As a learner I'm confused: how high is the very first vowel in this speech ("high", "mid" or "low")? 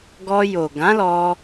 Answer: mid